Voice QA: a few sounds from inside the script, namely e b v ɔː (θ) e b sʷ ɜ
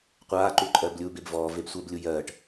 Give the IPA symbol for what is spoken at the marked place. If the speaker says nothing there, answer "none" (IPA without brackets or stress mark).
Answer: v